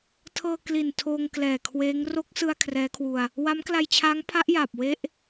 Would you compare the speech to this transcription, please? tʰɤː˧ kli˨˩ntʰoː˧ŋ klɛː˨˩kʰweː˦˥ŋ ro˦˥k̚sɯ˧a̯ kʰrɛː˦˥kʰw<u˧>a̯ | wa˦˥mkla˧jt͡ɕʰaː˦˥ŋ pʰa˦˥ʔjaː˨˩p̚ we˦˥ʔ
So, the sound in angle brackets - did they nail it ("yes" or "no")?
yes